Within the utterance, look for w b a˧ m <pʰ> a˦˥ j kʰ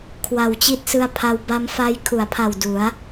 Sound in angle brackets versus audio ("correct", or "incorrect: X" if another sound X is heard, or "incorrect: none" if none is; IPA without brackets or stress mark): incorrect: f